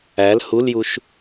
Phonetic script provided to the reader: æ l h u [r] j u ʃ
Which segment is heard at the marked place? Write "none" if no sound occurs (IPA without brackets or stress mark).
l